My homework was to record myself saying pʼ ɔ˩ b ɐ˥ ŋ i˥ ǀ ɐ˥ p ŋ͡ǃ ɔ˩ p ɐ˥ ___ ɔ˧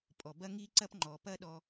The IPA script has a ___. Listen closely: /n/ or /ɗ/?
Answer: ɗ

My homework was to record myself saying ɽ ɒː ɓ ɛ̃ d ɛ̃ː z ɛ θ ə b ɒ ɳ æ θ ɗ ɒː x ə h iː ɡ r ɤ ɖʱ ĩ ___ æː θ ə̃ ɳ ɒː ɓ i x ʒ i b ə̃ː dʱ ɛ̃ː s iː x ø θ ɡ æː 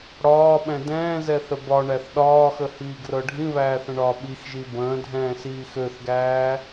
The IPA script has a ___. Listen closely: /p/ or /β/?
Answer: β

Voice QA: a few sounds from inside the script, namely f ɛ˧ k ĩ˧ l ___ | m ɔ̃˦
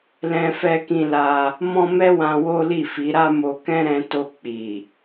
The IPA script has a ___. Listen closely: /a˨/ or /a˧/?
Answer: a˧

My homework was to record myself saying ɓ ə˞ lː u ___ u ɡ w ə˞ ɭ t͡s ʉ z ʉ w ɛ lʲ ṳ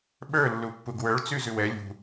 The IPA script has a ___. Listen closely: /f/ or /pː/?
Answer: pː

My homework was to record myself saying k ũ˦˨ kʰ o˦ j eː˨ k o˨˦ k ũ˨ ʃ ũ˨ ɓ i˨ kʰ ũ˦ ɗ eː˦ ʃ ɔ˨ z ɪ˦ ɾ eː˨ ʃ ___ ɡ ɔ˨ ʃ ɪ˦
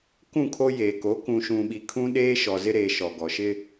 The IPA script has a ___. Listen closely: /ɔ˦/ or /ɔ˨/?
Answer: ɔ˨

